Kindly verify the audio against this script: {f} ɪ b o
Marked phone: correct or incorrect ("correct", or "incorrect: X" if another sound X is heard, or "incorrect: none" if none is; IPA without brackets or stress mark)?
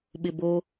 incorrect: ɓ